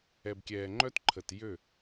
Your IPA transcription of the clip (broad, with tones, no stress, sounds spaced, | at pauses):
ɛ˨ b kʲ ɛː˨ ŋ͡ǃ œ˦ t ǃʰ ə˨ t j ø˦˨